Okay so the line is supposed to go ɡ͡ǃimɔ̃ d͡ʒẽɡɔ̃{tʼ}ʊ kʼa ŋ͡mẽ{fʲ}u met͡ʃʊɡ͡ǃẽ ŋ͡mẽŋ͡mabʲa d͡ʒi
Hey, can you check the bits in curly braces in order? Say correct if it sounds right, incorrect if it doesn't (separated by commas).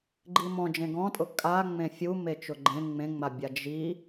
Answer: correct, correct